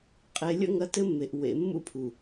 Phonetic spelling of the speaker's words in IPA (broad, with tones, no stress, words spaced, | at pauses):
qʼe˨lʲə̰˦˨ŋ ɐ˦tɘ˦mːe˨ʔ wḛ˨ mːṵ˦pʰu˨